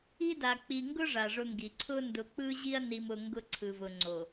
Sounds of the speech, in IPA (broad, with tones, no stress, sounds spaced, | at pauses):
i˦ d a˨ k͡p i˨ ŋ ɡ ʊ˦ ʐ a˨ ʐ ʊ˦ ŋ ɡ i˨ ǀʰ ʊ˦ n d ʊ˨ k͡p ɯ˦ ʑ i˦ ɐ̯ n i˨ m ʊ˨ ŋ ɡ ʊ˦ ǀʰ ɯ˨ v ʊ˨ ŋ͡ǀ o˨